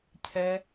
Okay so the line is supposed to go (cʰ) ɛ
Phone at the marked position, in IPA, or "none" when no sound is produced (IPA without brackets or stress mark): cʰ